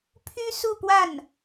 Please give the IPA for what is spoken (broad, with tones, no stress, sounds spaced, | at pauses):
pʰ y˥ s u˥˧ p w a˥˩ n